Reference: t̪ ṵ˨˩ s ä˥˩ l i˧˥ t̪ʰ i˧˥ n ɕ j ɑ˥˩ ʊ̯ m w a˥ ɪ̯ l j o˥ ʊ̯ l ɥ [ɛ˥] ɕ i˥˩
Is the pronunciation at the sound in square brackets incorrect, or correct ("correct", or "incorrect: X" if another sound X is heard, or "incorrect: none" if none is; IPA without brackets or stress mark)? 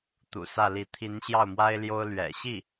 incorrect: ɛ̰˨˩